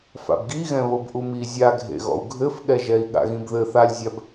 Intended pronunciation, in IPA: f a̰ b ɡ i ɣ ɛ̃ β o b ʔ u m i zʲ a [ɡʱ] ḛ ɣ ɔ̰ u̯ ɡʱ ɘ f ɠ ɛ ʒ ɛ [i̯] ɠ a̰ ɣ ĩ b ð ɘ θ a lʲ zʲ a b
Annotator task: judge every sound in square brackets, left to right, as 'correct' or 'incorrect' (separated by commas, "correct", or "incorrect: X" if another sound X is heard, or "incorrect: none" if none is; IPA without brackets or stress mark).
correct, correct